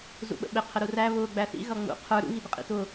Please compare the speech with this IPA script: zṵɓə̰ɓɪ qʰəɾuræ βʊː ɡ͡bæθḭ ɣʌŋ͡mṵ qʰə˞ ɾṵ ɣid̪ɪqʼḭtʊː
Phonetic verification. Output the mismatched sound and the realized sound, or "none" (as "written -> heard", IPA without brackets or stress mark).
none